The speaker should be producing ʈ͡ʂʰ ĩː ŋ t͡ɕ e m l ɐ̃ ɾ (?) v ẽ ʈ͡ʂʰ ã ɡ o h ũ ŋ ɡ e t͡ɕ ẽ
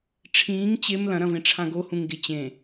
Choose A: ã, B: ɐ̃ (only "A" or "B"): B